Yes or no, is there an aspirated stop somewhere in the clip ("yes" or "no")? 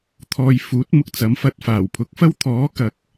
yes